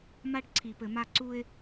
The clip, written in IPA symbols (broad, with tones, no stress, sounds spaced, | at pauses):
m a˦ ɖ ǀʰ i˨ p ɘ˨ m a˦ ǀ u˦ ɪ̯